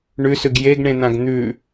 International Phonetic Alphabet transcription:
ɳ ʉ s ʉ ɡ j e ɡ ɳ ẽ n̪ ã ɡ n̪ ʉ

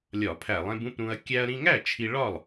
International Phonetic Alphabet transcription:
lʲ ɒ˧˩˧ pʰ æ˧˩˧ lˠ ẽ˧ b ũ˥˩ p ɾ ũ˧ ɐ̯ kʲ æ˧ ɐ̯ ɾ ĩ˧ ŋ æ˥˩ t͡ʃʰ i˧ ɭ ɒ˥˩ lˠ

